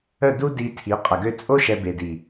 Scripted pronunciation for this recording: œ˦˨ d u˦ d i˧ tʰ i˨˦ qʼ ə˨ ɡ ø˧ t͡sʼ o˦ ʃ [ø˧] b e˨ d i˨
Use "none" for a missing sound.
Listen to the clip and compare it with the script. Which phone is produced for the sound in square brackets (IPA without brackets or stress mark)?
ɛ˧